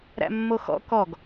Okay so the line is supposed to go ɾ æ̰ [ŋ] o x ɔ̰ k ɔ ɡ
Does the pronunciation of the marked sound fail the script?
yes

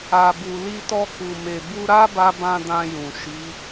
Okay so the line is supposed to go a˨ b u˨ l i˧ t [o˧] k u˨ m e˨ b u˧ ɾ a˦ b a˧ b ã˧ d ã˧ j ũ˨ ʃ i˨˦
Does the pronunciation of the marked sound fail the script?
yes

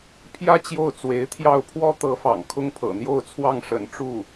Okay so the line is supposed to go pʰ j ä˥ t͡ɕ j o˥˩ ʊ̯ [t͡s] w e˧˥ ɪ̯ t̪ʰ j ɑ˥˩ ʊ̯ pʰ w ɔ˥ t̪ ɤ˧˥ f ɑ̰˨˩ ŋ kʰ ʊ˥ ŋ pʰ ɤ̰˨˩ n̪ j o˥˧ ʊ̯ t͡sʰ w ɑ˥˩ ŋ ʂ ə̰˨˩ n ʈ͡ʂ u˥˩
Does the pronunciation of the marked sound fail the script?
no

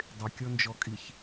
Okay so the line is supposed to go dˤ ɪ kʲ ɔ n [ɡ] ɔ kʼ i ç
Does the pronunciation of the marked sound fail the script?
yes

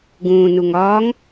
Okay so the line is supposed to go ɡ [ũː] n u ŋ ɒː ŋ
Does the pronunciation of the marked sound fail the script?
no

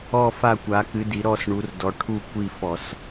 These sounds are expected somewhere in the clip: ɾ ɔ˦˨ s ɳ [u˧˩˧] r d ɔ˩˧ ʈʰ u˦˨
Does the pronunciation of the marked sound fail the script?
yes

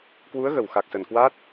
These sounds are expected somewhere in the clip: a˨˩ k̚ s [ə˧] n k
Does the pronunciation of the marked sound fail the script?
yes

